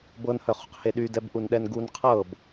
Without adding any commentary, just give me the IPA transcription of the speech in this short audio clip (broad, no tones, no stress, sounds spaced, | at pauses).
b ɤ n h œ χ ṳ q h e ɗ y d ɛ b ʔ u n ɗ ɛ n ɡ u n qʰ ɤ b